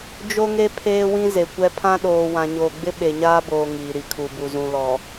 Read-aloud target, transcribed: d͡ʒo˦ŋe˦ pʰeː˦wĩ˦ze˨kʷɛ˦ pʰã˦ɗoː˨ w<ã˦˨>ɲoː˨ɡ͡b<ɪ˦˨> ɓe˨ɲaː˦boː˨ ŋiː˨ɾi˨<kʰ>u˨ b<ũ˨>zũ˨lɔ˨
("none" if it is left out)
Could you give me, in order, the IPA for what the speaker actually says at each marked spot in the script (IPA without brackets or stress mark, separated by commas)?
ã˨, ɪ˦, kʰ, u˨